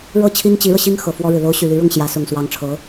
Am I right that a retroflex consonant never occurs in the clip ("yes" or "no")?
no